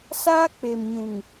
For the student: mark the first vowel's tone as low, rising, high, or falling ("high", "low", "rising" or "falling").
high